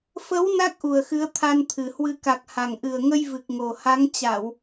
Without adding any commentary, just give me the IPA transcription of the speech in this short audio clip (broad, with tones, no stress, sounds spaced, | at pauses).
f ə˨˦ w n a˦˥ k̚ ʔ u˨˩ ə̯ x ɨ˨˦ ə̯ t̪ʰ a˧ n t̪ʰ ɨ˨˩ h w ɨ˨˦ k a˨˩ k̚ h a˨˩ ŋ ʔ ɨ˨˩ ə̯ ŋ ə˧ j v ɨ˨˩ k̚ ŋ o˨˩ h a˨˦ ŋ t͡ɕ a˧˩˨ w